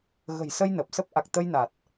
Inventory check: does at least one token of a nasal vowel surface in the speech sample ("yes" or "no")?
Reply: no